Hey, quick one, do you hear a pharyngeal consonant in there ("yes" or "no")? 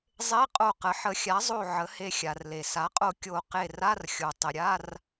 yes